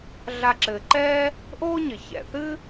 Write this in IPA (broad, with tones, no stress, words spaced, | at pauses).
ɮa˨ǁɘː˩ǃɛː˦ | ʔoː˦ɲɘ˩ çɛ̰˨θɨ˥